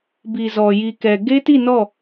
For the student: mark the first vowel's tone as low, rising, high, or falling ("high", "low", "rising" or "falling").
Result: low